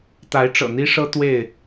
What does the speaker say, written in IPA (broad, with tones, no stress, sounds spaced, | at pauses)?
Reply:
t̪ a˨˦ ɪ̯ ʈ͡ʂ ɤ̰˨˩ n̪ i˦ ʂ ɤ˦ t̪ w e˥˨ ɪ̯